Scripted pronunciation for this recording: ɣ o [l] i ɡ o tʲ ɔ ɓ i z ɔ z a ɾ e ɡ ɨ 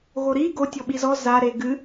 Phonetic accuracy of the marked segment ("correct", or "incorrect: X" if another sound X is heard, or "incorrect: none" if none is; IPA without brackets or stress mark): incorrect: ɾ